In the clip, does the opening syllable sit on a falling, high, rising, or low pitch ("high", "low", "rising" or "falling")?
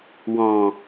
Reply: low